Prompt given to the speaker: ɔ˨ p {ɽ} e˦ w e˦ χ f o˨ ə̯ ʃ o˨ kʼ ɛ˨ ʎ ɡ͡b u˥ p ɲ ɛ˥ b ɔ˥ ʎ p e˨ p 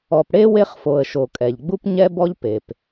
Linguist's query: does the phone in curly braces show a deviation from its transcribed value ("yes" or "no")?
no